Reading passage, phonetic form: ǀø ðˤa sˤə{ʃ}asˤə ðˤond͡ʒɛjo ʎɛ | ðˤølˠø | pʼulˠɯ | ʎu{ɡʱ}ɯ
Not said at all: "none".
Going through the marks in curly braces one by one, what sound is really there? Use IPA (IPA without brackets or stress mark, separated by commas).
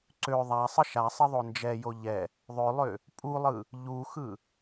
ʃ, x